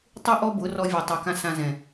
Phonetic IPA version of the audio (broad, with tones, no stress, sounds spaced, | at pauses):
tˤ u˦ ʔ ɔ˦ b ʊ˨˦ r ɔ˧ vʲ e˨ tˤ ɛ˨ k ã˧ s ã˧ z ɛ̃˨